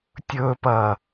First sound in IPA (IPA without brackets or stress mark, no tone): tʲ